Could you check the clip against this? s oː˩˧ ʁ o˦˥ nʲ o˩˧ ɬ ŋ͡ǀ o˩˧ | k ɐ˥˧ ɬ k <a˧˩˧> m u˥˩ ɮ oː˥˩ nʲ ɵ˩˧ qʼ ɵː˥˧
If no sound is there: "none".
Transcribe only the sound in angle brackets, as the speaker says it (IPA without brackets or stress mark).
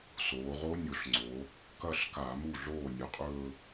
a˧˩˧